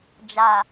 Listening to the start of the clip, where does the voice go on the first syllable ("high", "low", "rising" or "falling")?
low